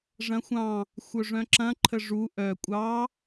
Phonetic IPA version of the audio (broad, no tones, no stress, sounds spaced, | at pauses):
ʐ ɐ̃ xʷ ɑ̃ | xʷ œ ʐ œ̃ ǁ ɐ̃ ǃʰ ə ʐ u ʔ œ kʷʼ ɑ